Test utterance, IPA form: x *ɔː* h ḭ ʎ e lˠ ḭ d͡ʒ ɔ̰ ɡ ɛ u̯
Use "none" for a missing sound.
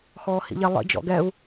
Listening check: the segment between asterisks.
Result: ɔː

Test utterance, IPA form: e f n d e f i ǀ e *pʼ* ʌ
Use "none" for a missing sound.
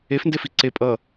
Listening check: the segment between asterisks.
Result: pʼ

